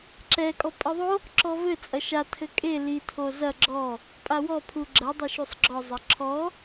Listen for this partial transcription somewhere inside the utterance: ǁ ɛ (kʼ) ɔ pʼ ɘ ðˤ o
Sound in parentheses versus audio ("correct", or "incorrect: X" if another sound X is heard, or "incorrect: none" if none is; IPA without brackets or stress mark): correct